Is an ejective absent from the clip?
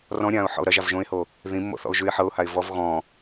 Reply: yes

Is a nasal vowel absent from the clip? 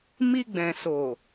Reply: no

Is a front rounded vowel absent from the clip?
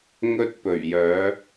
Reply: no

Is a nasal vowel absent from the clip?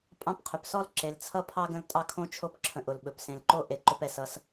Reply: no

